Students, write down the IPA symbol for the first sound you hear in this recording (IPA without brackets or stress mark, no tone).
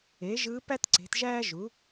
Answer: e